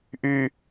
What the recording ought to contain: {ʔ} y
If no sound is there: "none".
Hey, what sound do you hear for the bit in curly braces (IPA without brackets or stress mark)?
ʔ